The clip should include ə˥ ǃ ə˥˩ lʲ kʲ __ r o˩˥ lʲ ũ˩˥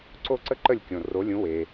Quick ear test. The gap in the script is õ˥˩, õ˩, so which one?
õ˩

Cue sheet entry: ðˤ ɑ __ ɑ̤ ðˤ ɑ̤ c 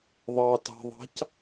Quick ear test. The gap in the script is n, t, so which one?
t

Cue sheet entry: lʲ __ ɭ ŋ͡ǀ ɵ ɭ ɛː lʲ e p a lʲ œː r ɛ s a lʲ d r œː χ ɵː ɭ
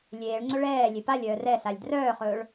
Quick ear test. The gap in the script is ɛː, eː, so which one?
eː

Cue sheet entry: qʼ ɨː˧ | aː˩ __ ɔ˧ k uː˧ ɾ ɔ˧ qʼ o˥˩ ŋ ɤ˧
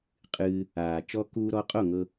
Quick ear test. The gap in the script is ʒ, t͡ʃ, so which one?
t͡ʃ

